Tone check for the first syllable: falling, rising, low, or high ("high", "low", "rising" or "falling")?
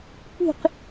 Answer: falling